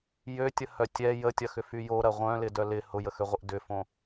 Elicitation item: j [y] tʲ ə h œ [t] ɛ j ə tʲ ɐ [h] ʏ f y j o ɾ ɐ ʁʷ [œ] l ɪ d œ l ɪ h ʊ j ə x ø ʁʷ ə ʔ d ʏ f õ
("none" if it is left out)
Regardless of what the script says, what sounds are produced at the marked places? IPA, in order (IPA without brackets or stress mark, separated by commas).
ø, tʲ, x, œ̃